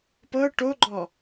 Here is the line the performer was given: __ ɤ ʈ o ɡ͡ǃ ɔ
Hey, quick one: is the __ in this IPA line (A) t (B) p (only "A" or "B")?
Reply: B